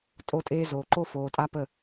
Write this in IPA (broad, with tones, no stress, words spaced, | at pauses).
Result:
tʼo˦tʼeː˦ zoː˨ǃo˦foː˨tʼa˦ pə˦˨